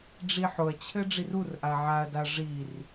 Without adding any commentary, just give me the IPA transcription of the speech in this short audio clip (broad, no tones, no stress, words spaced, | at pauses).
ɖ͡ʐiħʊɐ̯t͡ɕʰɘ ɖ͡ʐirurʔa ʕaɐ̯daɐ̯ ʐir